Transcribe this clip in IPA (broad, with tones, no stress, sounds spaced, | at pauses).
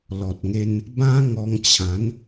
l ɔ˨ t̚ ŋ e˧ n | b ã˦ ŋ ɔ˧ ŋ t͡ɕʰ ã˨˦ n